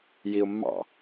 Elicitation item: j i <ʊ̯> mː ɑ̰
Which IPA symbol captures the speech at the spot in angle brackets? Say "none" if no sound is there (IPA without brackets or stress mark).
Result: ʊ̯